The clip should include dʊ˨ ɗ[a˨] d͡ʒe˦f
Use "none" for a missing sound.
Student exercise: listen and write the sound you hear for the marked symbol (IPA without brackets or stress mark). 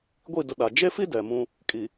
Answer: a˨